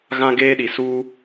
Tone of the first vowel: high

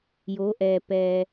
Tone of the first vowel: rising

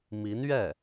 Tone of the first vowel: rising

